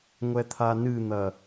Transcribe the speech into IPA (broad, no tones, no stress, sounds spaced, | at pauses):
ŋʷ ɛ t̪ʰ a n ɨ n̪ ɐ